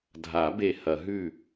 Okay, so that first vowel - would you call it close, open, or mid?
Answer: open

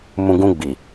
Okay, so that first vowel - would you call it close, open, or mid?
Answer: close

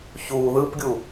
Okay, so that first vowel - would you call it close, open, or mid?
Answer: close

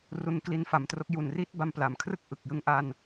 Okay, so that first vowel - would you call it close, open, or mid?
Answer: close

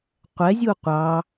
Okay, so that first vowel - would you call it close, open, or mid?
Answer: mid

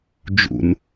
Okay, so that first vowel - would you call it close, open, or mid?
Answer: close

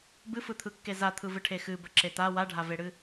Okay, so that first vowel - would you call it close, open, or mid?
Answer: close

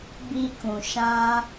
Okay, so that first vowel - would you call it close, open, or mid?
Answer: close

